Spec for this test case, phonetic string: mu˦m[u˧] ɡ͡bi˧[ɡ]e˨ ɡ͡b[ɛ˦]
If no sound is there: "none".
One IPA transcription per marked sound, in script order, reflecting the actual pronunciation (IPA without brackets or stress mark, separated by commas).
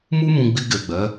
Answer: ũ˧, ɡ, ɛ˨˦